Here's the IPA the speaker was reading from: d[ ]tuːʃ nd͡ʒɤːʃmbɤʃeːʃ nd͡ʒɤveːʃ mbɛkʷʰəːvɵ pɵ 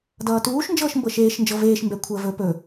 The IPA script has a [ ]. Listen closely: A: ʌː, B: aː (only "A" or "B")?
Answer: A